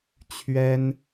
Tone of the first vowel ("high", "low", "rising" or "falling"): high